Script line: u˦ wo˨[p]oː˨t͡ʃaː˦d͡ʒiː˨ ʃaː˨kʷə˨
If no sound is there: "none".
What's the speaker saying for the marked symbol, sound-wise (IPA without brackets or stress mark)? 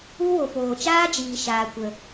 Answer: p